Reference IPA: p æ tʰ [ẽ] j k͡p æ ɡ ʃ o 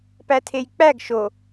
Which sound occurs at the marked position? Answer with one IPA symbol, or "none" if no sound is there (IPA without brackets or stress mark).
e